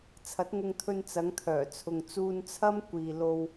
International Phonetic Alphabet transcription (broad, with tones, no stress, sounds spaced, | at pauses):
t͡sʰ ɐ˨˥ t̚ ŋ ʊ˧ ŋ t̪ʰ ɵ˧ n t͡s ɐ˨˧ ŋ t̪ʰ œː˨˩ t͡sʰ ʊ˨ ŋ t͡s uː˧ n t͡sʰ ɐ˥ m kʷ iː˨ l o˧ w